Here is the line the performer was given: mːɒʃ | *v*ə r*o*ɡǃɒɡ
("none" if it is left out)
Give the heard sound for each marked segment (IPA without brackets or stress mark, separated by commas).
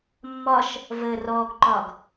v, ɔ